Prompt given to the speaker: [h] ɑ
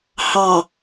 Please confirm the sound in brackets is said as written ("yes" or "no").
yes